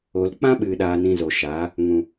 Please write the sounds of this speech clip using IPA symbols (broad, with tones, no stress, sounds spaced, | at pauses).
o˨ l k͡p ã˦ ɓ ɨ˨ ɗ aː˨ n ĩ˧ z o˨ ʃ aː˨˦ | ŋ ũ˨